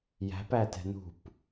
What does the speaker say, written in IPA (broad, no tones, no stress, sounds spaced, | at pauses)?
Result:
j æ̤ p æ t ɛ̤ n ṳ p